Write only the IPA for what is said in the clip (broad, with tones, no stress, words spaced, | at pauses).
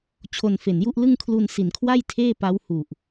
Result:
t͡ɕʰo˧nfe˨˩nju˥˩ʔ lɯ˥˩ŋkʰlu˧nsi˨˩nkʰwa˥˩j tʰeː˥˩pa˦˥whu˨˩ʔ